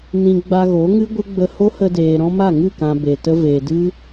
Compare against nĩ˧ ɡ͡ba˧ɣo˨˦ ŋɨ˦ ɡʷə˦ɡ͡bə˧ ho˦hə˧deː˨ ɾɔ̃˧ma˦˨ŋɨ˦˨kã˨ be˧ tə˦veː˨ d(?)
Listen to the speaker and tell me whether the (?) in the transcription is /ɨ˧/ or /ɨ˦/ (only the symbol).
ɨ˦